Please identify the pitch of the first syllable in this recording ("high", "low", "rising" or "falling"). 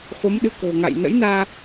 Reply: rising